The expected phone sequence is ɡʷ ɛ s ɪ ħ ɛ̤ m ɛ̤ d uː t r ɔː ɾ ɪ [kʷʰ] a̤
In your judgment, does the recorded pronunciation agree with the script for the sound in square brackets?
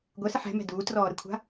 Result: yes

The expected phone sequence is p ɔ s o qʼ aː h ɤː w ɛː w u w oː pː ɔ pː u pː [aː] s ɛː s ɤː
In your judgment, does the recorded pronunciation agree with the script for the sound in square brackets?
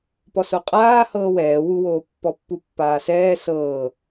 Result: yes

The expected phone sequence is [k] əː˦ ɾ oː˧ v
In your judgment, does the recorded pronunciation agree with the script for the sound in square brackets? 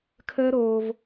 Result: no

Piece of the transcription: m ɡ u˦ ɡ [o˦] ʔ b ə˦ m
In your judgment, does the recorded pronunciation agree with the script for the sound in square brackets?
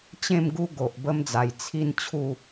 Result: no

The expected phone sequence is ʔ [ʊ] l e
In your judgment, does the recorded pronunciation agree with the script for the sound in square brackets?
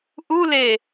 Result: no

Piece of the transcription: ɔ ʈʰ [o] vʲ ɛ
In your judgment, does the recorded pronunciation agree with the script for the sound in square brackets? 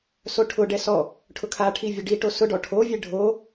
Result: yes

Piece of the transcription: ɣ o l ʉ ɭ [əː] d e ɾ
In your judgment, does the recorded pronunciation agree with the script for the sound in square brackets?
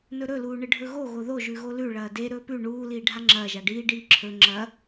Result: no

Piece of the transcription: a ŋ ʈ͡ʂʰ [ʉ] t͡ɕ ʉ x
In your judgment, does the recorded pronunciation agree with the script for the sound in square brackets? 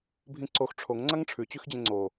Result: yes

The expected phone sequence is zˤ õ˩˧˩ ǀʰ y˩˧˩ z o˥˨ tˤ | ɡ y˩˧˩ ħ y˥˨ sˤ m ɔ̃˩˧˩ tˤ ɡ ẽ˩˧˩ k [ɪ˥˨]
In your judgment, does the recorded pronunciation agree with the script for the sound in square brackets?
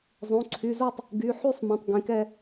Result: no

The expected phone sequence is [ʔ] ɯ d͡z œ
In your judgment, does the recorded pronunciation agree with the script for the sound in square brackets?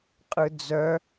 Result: no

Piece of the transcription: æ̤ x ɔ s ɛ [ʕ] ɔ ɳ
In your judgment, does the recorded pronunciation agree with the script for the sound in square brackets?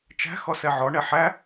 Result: yes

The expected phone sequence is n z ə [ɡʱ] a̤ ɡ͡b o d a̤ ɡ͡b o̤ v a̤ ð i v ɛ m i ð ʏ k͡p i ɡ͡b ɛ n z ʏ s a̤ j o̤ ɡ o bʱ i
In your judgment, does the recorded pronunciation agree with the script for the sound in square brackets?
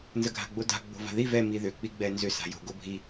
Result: yes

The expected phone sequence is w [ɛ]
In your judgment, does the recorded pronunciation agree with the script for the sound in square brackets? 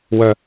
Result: no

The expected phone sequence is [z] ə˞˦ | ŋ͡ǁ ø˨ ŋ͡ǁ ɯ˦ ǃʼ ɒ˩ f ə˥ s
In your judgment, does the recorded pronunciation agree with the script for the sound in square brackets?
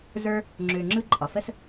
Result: yes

